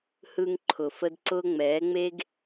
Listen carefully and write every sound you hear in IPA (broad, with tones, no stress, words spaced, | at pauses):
hɯː˧ŋǃʰʊ˨fə˧d ǀʊː˧ŋ͡mɛː˨˦ŋ͡me˦ɡ